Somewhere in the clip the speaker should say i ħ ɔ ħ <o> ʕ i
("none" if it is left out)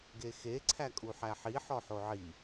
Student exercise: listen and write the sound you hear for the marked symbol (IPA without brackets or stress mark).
o